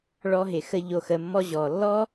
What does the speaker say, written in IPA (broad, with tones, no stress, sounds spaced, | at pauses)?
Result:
ɭ ɔ˧ ɦ ɪ˨ x ə˧ ʎ o˨ x ə˨ mː ɔ˧ ʑ ɔː˨ lː ɔ˦